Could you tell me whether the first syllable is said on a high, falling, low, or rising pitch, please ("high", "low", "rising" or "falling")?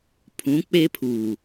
rising